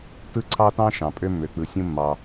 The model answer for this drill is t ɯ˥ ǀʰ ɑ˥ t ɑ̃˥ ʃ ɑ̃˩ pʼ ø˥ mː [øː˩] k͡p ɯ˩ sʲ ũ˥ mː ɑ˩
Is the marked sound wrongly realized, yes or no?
yes